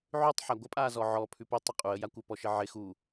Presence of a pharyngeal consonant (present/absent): present